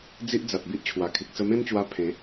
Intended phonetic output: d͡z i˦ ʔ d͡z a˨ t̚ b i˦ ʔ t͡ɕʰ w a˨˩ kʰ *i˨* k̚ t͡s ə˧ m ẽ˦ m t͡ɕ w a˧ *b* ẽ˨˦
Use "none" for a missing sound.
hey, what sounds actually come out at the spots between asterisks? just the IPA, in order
i˨, pʰ

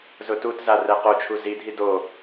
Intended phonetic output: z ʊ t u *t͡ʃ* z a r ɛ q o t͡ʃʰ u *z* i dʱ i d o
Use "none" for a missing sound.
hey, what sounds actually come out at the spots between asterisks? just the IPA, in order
t, z

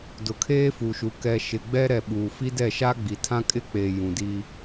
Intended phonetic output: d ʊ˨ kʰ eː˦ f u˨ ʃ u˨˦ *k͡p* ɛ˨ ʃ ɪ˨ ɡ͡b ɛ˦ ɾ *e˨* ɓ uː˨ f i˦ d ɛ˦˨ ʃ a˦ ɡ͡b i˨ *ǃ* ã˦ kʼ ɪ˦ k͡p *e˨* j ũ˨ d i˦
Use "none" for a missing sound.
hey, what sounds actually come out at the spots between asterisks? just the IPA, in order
k, ɛ˨, tʰ, e˨

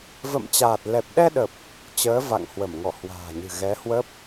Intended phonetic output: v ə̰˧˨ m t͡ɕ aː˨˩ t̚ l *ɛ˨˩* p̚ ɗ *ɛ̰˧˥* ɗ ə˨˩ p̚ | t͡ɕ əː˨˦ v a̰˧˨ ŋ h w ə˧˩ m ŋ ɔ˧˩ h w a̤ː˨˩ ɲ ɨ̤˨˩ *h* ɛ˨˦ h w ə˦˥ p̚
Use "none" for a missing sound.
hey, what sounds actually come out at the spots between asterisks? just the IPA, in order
ɛ˨˩, ɛ˧, ɣ

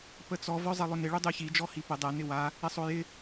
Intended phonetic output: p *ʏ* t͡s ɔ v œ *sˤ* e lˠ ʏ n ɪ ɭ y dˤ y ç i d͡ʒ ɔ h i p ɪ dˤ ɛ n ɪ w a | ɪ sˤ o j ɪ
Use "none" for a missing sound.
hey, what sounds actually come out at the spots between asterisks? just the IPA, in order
ə, zˤ

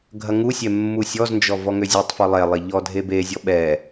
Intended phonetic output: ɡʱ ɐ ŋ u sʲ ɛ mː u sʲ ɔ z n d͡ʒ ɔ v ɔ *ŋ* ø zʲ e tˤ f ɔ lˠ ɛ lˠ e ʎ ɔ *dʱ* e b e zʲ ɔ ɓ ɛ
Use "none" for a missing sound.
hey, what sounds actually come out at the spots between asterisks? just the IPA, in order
ŋ, dʱ

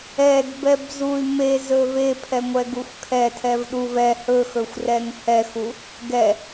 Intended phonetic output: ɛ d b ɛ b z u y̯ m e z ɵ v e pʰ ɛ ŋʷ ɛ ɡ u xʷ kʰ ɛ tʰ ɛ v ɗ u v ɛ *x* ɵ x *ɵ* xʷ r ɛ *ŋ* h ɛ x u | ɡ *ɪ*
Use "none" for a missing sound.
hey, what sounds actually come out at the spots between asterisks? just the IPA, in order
h, ɵ, ŋ, ɛ

